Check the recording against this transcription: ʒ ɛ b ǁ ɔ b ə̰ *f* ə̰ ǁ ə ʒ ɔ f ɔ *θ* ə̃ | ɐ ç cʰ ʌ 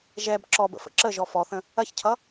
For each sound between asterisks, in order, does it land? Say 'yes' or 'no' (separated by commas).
yes, yes